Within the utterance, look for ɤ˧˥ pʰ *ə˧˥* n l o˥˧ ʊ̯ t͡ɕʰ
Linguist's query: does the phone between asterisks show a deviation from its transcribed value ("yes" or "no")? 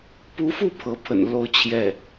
yes